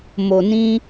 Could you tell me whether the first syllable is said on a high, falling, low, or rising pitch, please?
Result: low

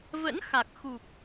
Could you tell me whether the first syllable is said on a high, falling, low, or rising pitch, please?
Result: rising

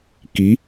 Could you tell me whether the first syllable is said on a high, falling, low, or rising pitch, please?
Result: rising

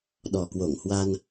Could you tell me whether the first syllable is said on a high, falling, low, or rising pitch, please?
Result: low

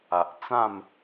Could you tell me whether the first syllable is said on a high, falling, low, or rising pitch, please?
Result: low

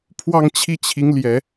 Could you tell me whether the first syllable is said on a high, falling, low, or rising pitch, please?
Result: falling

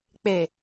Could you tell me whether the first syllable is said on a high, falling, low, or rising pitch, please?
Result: low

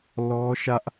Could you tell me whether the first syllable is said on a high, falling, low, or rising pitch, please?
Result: high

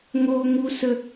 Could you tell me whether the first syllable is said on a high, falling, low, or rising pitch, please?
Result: high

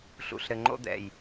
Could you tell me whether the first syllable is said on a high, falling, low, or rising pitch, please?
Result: low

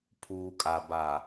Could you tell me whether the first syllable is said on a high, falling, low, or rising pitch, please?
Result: low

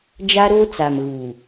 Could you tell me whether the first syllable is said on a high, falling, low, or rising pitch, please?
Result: high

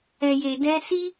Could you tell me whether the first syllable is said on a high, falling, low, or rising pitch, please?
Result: low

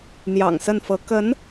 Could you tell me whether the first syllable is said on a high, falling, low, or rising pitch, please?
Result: low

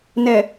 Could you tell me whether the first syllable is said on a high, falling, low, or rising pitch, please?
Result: low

